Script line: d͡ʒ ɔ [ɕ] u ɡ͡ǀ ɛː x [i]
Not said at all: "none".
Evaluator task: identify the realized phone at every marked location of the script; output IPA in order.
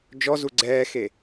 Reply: z, e

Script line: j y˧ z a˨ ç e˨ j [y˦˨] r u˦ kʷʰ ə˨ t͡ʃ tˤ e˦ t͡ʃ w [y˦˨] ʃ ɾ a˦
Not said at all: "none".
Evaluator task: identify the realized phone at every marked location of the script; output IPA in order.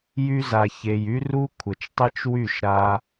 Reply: y˦, y˦˨

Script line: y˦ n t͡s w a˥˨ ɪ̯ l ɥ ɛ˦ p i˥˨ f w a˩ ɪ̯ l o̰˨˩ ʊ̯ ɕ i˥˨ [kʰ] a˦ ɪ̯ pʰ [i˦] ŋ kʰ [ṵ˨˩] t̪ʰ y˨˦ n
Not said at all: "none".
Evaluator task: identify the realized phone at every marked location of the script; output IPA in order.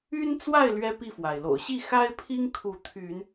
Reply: x, i˦, u˨˦

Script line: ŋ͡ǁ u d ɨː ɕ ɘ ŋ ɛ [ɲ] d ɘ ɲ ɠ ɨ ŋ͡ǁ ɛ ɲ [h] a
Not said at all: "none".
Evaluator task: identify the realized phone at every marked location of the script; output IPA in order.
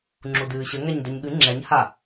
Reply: ɲ, h

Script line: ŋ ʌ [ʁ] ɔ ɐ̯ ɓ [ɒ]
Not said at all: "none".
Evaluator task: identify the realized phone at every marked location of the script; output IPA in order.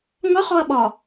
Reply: χ, ɒ

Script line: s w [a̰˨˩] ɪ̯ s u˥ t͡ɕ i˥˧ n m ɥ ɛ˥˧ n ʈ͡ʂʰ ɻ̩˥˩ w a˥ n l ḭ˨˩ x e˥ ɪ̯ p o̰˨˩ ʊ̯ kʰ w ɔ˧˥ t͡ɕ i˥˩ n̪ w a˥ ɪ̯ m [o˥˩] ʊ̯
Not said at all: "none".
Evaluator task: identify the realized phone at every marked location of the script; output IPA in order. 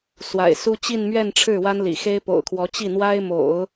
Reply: a̰˨˩, o̰˨˩˦

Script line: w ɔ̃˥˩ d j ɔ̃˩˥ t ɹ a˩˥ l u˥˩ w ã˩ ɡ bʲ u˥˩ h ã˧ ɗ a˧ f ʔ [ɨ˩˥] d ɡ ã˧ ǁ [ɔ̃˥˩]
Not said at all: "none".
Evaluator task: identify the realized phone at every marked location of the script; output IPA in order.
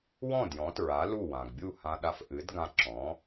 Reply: ɨ˩˥, ɔ̃˩˥

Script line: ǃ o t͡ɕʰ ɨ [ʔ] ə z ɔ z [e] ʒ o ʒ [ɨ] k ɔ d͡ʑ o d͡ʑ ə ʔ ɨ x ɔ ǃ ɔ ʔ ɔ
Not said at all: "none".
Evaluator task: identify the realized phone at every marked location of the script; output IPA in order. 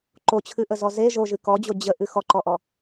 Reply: ʔ, e, ɨ

